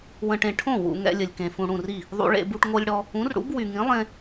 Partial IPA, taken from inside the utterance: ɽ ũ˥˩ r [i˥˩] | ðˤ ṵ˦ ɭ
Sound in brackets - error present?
no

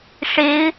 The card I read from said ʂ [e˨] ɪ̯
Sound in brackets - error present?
yes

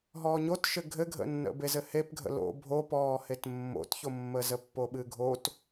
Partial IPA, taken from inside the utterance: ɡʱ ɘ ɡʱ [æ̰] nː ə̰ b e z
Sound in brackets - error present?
yes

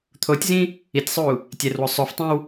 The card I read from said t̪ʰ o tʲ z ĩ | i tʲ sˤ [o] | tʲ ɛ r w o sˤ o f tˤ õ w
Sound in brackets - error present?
yes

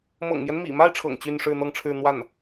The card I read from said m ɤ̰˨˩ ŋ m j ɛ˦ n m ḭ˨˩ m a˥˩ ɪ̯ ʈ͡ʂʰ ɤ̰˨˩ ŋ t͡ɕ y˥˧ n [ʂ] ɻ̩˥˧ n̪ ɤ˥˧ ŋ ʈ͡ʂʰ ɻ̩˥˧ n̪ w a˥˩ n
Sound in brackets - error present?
no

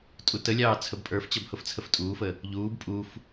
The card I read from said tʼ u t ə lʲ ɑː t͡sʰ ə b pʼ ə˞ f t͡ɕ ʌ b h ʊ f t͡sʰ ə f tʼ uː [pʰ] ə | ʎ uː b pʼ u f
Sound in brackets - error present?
yes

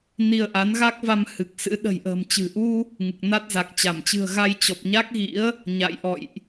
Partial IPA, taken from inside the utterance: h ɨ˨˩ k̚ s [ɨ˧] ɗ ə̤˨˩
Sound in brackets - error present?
yes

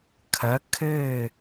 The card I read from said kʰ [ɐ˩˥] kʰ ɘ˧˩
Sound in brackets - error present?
no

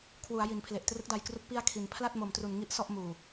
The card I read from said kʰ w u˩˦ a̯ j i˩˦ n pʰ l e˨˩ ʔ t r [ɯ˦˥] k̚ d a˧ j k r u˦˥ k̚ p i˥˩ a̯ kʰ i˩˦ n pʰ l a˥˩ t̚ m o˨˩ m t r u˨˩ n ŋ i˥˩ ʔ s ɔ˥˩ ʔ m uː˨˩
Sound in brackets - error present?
no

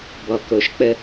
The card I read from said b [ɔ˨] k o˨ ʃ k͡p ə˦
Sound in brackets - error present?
no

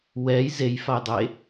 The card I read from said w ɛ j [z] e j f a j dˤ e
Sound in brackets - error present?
no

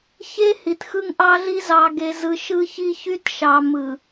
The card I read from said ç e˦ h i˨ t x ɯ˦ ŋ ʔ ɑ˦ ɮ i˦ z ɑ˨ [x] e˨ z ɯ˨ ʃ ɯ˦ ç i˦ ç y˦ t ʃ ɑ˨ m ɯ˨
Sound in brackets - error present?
yes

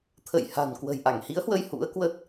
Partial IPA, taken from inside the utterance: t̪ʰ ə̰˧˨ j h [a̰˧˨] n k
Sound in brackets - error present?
yes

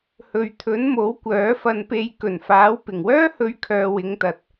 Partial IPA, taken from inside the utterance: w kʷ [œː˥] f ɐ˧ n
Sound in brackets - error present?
yes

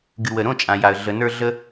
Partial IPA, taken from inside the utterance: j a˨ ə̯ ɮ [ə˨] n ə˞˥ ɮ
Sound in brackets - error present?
no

